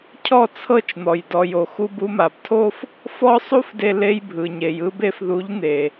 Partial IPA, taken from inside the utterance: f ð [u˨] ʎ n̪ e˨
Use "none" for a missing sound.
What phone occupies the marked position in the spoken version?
u˨˦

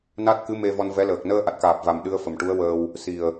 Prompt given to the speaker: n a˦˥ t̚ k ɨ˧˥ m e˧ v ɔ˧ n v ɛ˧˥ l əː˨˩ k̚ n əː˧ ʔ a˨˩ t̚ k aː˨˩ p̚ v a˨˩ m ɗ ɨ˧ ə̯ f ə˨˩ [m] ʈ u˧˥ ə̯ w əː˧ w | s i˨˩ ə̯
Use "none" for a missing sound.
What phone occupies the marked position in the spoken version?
m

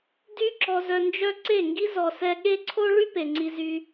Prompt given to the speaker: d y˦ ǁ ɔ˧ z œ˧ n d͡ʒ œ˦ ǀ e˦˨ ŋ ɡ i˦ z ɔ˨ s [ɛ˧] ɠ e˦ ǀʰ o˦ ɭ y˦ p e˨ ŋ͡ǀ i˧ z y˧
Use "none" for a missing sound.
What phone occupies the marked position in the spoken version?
ɛ˧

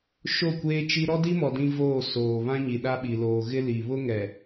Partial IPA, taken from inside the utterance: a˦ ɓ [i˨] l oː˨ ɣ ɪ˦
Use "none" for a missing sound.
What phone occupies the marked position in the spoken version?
i˨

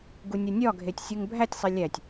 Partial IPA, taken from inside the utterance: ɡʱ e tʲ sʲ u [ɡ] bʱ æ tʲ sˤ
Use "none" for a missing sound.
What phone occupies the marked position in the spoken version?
ŋ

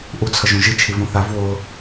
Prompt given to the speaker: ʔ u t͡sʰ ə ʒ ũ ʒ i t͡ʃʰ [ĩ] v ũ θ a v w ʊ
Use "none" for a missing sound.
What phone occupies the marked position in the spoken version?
i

